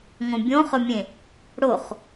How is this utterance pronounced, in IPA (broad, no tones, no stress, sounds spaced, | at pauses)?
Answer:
ŋ õ bʲ õ χ ɵ mʲ ẽ | ɽ o χ